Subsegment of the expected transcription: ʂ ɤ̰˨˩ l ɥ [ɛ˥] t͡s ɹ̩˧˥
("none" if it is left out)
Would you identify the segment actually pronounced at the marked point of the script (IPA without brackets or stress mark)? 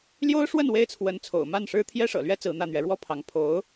ɛ˥